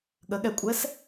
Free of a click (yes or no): yes